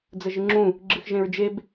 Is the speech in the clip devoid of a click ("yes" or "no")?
no